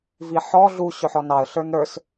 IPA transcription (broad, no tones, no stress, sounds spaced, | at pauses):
v i ħ ɔ ɮ u ɕ ʊ ħ ɔ n ɑ ə̯ ɬ ə˞ n ɾ ə˞ s